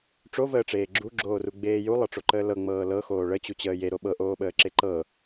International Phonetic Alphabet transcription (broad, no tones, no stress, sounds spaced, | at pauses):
ʈ͡ʂ o v əː ʈ͡ʂ eː ɡ͡ǁ u ɡ͡ǁ oː r u ɡ͡b eː j u lˠ ɤ ʈ͡ʂ o ǃ əː l ɤ ŋ͡m ɤː l ɤ x oː ɭ ə t͡ɕ u t͡ɕ əː j e ɾ o ɓ ɤ ʔ oː ɓ əː ǁ e ǃ ɤ